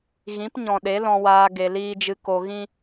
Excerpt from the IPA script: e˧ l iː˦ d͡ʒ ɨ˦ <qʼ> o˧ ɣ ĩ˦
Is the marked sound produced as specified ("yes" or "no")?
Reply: no